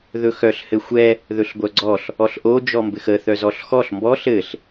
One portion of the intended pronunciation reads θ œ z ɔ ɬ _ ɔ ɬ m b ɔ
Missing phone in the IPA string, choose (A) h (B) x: B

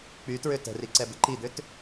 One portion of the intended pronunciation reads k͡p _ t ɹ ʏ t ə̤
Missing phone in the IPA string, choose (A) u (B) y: B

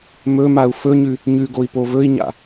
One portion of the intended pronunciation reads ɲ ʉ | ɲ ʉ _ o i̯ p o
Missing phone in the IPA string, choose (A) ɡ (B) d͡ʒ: A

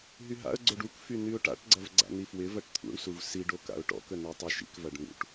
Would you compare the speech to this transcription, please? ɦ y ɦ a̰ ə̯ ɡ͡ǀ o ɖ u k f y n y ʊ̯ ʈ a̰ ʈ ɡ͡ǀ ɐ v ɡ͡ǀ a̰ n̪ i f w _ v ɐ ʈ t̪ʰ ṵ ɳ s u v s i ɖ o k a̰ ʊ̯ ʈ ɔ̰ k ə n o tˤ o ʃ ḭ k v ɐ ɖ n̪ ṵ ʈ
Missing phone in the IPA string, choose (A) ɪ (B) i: A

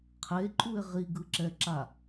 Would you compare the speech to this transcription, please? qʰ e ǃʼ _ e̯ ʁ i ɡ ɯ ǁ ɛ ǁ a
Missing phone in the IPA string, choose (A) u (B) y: A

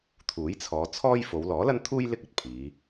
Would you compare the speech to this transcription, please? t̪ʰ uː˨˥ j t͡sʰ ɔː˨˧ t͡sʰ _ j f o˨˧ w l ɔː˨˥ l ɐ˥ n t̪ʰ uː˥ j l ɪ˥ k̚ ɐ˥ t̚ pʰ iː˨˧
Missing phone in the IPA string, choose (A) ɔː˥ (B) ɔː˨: A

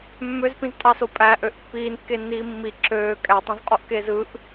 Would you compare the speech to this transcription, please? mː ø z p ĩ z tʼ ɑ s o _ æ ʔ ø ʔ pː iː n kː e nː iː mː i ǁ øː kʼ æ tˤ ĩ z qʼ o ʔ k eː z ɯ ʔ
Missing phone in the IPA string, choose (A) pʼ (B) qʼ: A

